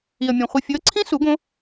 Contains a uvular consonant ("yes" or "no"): yes